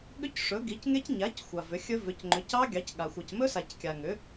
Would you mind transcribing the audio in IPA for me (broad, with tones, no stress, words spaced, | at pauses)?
ɠʏ˦˥cʂɵ˩˥ɡi˩˥cŋe˦˥c ɲa˩˥c xʷa˨vʏ˩˥xʲɵ˦˥ vʏ˩˥cŋ͡ǃʏ˩˥cɑ˦˥ɡʲɑ˩˥c ɠa˨ xʷɑ˨cmɵ˦˥sa˨c kʲa˨ŋʏ˩˥